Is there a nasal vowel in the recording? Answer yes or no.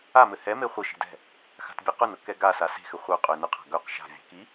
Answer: no